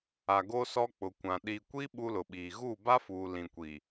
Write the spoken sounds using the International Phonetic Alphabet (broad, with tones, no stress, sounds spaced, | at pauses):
a˨ ɡ o˦ s ɔ˦ k͡p ʊ˨ kʷ ã˨ ɗ i˨ kʷ i˦ ɓ u˦ l ʊ˨ ɓ iː˨ ɣ uː˦˨ b a˦ f uː˨ l ĩ˨ kʷ i˨